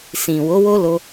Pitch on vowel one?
low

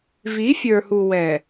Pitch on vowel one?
rising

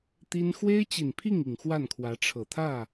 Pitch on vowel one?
high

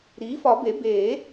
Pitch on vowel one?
rising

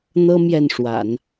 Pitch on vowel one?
high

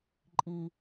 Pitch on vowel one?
low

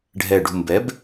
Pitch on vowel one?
low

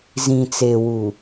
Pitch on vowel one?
low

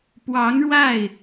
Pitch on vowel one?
rising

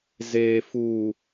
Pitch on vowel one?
low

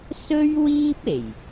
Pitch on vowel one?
high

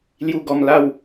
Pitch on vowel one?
high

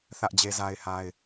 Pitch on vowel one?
high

